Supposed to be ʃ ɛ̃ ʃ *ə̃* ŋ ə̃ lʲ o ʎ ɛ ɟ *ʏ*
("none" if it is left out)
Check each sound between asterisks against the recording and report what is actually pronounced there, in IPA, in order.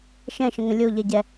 ə̃, ɛ

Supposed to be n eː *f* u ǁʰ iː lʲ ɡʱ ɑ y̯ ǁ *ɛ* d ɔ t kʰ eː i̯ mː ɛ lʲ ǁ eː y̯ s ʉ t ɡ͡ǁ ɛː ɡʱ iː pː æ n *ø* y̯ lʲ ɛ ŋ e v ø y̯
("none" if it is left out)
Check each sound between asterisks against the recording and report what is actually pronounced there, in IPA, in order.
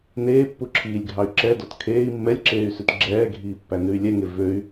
pː, ɛ, ʉ

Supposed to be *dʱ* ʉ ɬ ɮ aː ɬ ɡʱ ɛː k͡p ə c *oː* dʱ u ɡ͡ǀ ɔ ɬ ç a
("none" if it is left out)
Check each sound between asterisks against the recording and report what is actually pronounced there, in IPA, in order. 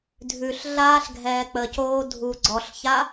dʱ, oː

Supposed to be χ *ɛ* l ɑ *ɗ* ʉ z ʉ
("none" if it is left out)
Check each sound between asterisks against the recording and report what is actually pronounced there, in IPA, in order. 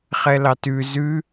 ɛ, t

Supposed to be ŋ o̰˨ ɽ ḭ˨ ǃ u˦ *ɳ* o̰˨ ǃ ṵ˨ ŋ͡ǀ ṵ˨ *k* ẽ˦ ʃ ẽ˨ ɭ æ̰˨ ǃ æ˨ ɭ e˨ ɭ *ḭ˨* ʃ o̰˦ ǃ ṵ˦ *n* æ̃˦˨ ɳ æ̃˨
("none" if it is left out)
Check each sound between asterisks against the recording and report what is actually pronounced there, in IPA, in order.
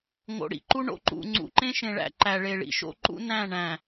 ɳ, ǃ, ḭ˨, n

